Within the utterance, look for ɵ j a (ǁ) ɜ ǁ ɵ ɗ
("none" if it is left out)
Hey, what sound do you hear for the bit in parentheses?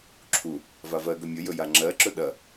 ŋ͡ǁ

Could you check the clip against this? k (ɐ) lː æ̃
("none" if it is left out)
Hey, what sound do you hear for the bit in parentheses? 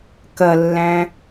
ɐ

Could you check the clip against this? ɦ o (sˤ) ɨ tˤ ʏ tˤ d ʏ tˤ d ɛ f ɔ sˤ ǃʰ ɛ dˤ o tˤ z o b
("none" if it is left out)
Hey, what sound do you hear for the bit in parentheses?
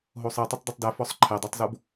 sˤ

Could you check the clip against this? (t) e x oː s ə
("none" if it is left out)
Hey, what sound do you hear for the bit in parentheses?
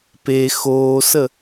p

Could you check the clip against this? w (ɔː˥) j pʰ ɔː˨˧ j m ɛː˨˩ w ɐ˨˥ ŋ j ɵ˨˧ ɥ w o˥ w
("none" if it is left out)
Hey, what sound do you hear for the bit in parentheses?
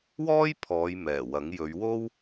ɔː˥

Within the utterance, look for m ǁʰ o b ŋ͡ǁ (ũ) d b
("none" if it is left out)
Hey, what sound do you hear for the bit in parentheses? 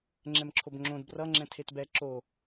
õ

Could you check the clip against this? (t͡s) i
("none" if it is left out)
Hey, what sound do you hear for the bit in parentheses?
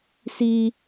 s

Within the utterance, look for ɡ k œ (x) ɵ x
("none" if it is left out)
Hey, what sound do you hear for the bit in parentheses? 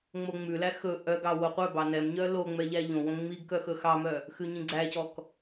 x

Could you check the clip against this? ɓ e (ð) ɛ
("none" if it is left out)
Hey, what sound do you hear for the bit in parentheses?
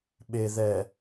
ð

